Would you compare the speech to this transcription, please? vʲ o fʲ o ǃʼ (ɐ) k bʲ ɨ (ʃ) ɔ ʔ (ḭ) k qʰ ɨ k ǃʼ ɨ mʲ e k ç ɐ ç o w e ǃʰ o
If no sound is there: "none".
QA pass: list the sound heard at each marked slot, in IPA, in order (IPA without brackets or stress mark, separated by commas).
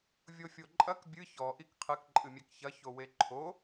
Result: ɐ, ç, i